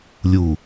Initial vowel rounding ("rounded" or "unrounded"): rounded